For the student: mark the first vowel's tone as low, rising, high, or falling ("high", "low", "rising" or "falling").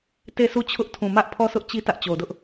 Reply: falling